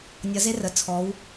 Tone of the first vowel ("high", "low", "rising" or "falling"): rising